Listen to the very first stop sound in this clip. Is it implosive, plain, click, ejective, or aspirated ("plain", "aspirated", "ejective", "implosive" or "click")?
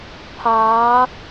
aspirated